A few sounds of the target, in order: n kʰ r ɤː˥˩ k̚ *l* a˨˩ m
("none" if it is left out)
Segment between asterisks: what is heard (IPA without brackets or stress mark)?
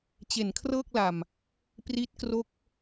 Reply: l